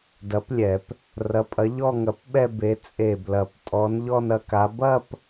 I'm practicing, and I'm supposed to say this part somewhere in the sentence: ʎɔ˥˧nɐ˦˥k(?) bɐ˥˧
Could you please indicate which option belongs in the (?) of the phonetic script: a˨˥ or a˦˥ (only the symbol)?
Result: a˨˥